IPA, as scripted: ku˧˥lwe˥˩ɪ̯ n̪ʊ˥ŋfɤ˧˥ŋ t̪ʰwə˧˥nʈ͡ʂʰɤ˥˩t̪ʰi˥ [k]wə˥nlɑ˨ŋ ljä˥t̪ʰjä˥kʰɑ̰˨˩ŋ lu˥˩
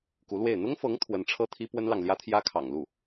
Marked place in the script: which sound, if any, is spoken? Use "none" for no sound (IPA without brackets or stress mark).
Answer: p